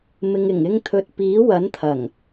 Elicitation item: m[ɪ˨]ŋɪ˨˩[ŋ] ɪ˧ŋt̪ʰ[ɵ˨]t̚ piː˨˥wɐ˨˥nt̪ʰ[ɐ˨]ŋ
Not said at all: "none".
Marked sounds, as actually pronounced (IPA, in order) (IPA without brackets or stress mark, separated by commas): ɪ˨, ŋ, ɵ˨, ɐ˨˩